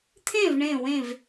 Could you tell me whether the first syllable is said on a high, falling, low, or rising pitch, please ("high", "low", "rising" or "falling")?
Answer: falling